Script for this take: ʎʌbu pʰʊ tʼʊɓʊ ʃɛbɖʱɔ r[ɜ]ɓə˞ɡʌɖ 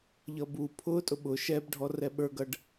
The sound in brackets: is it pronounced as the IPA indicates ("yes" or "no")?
no